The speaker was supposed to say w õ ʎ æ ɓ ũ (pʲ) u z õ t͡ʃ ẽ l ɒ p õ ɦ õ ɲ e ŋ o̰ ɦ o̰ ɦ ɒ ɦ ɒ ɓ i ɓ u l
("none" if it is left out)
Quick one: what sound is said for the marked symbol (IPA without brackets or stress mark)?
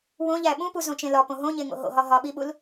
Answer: p